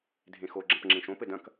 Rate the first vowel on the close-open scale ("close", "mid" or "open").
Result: mid